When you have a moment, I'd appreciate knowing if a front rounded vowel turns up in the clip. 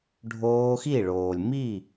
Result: no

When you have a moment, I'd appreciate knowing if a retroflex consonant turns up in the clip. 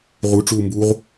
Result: yes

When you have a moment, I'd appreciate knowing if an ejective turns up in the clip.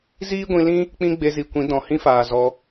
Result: no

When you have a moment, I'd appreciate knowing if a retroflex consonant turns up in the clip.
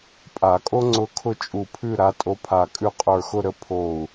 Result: no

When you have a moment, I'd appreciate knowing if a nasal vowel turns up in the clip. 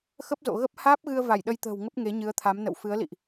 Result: no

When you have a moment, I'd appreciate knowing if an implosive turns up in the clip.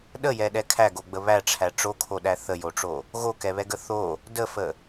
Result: yes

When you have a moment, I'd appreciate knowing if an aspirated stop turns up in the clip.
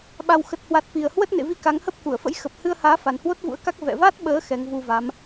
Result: no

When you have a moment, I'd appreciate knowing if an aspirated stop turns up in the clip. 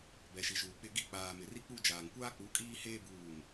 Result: no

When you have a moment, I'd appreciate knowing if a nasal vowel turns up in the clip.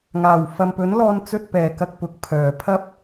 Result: no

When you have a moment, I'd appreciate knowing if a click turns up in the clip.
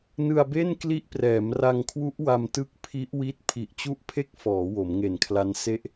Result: no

